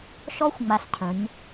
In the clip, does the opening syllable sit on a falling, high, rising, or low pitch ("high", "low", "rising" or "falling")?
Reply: high